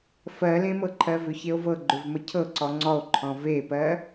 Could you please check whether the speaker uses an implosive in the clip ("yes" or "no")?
no